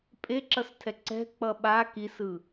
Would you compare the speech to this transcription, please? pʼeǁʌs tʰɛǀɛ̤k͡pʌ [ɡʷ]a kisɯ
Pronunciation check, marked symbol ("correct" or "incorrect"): incorrect